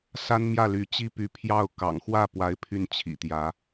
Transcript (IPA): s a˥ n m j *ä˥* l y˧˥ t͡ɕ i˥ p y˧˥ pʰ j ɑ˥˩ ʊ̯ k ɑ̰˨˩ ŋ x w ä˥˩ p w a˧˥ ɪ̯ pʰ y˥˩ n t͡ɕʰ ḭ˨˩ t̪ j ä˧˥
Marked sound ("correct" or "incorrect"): incorrect